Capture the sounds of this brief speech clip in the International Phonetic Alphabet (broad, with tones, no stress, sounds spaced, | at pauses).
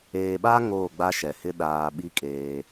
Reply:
eː˨ ɓ a˦ ŋ oː˦˨ ɡ͡b a˦ ʃ ɛ˨ h ɪ˦ ɗ aː˨ ɓ i˦ kʼ eː˦